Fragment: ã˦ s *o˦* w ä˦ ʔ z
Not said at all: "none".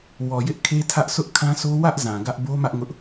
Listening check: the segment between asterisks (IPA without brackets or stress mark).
o˦